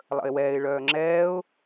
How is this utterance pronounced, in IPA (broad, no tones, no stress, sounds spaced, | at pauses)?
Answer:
lˠ ə̰ ɪ̯ w ɛː ɪ̯ ɭ œː ŋ͡ǁ ɛː ʊ̯